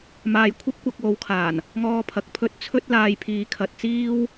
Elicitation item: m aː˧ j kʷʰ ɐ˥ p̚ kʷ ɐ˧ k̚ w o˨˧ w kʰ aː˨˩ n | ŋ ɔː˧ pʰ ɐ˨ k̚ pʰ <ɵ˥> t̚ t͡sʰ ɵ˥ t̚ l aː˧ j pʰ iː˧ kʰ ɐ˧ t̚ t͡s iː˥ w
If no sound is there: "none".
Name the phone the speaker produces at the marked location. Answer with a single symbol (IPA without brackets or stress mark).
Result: ɵ˥